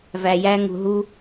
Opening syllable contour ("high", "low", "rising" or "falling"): low